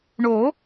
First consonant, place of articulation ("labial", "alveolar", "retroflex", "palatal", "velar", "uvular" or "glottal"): retroflex